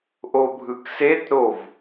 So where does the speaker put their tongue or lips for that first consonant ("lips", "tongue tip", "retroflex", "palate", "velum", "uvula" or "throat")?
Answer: throat